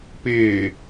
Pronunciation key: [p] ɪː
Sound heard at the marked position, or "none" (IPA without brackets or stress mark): p